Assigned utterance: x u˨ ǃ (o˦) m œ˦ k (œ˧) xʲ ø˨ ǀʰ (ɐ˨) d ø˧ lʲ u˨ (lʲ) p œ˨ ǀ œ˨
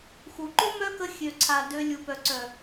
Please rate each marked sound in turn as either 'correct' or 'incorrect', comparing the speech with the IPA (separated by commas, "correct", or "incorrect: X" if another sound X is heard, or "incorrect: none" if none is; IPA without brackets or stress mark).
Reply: correct, incorrect: ə˧, incorrect: a˨, incorrect: none